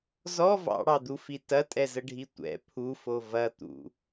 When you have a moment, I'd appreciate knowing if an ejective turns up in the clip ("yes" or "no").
yes